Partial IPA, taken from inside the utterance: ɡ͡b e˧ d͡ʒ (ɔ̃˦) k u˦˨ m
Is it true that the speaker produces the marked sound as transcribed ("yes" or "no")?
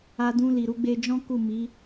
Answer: yes